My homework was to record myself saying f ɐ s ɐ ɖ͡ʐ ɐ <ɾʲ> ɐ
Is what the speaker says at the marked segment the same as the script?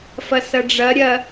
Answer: yes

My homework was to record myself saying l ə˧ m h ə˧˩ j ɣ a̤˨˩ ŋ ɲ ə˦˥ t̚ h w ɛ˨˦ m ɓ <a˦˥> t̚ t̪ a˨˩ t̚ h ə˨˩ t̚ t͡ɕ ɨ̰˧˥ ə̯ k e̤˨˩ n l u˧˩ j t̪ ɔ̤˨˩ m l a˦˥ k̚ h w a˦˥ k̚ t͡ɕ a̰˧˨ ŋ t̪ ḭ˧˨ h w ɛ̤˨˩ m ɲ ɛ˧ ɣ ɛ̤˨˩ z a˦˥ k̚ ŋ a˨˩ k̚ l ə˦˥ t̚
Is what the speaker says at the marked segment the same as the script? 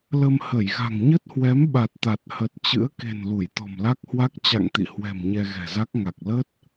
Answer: no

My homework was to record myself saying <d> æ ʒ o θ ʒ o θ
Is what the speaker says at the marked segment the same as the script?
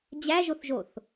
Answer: no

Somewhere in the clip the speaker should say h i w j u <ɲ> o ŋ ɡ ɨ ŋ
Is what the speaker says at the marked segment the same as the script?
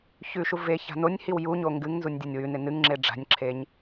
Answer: yes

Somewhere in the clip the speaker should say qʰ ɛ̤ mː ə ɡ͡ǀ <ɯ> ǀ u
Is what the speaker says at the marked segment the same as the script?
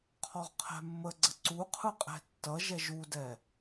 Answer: no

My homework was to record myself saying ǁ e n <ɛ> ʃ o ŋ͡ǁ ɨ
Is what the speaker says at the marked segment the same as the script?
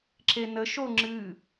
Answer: no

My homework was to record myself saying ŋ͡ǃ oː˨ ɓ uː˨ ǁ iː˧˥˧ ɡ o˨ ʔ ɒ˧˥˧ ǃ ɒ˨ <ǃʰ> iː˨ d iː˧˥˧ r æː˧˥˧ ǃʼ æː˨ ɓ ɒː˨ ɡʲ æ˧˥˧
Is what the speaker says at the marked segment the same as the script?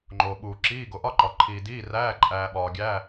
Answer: yes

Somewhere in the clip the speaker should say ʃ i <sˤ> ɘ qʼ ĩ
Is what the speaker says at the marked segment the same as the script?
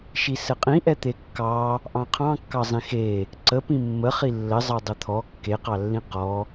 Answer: no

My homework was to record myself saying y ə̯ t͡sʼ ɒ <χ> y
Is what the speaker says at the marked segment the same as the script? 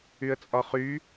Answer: yes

